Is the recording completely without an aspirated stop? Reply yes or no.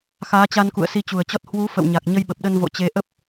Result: yes